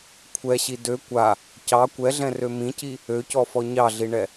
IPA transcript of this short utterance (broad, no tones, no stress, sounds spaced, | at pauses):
kʷʰ ɛ ɕ i d ø kʷ a | c ɑ kʷ ɛ ɮ ɛ̃ r ø m ĩ c i | ø c ɔ f ɔ ɲ ɑ ɮ i ɳ ɛ